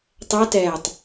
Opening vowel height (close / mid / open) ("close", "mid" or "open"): mid